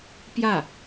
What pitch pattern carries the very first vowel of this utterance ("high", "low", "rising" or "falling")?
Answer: falling